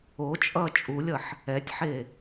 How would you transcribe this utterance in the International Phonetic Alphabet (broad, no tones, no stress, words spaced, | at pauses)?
ot͡ʃʼʌː t͡ʃʼulʲʌħ | ɛtʲħe